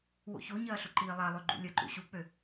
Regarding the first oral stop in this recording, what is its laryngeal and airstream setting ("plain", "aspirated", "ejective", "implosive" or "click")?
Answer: click